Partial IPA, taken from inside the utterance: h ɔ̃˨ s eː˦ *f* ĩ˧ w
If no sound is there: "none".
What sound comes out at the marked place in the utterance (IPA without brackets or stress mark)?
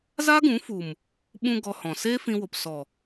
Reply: f